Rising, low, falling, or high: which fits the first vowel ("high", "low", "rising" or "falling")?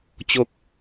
low